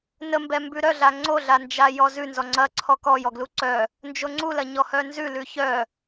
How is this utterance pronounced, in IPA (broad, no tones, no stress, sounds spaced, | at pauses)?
n ə m b ɛ m b ʉ ɾ œ ɮ a ŋ͡ǀ o ɮ a n d͡ʒ a j ɔ z ʉ n z ɔ ŋ͡ǀ ɐ ǀʰ ɔ k ɔ j ɔ ɡ l u ǀ œ | n d͡ʒ o ŋ͡ǀ u l ɐ ɲ ɔ h œ n z ʉ l ʉ ç œ